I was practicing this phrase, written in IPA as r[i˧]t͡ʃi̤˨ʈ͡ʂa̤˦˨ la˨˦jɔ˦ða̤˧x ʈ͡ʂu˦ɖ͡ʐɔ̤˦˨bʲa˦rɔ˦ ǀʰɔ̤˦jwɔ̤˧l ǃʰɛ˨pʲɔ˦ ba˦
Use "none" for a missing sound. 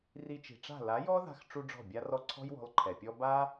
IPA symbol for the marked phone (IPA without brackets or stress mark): i˧